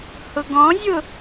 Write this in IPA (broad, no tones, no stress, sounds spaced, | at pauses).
h ʊ ɡ ɔ̃ zʲ ʊ